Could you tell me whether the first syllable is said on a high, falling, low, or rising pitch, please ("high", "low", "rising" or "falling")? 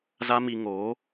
high